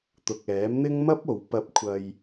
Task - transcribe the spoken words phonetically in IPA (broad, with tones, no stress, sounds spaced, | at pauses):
t̪ ʊ˨ k̚ ɛː˨˥ m n̪ ɪ˥ ŋ m ɐ˥ p̚ o˨˧ w p ɐ˧ p̚ kʷʰ ɐ˧ j